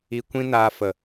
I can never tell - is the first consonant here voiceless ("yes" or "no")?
yes